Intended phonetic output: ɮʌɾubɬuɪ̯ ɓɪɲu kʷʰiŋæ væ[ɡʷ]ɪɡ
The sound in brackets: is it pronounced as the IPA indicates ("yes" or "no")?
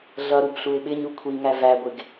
yes